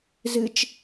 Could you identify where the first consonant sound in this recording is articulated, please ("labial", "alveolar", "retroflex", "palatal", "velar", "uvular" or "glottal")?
alveolar